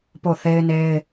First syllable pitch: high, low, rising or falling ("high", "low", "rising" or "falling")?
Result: falling